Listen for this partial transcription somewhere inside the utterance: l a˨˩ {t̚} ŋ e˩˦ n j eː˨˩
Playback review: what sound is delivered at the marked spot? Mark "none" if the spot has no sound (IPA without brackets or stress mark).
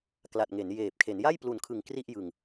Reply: t̚